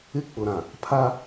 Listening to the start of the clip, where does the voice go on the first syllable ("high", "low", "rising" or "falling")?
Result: high